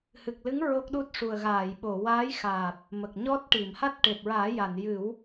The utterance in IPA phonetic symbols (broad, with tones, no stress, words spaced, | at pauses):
hɨ˨˩k̚lɨ˧˥ŋ ɹo˦˥k̚ɗu˦˥t̚ ʂu˨˩ə̯ɣaː˨˩˨jɓo˨˩˨ waː˧˥jxaː˨˩p̚ | mə˨˩k̚ɲɔ˦˥t̚ʈi˨˩˨m ha˦˥t̚ʈe˨˩p̚ɹaː˨˩˦ ja˨˩˨njɨ˨˩˦w